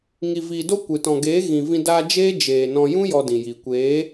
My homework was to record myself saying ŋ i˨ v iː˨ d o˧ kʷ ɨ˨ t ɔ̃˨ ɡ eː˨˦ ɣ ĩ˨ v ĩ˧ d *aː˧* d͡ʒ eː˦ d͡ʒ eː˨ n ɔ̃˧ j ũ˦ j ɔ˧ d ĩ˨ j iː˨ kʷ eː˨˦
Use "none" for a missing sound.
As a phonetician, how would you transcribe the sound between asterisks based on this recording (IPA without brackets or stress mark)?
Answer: aː˧